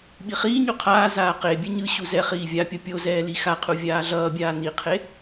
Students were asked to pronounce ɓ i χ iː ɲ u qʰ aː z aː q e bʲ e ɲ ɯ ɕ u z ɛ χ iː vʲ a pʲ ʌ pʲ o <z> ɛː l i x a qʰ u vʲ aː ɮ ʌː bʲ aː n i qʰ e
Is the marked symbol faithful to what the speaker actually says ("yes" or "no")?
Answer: yes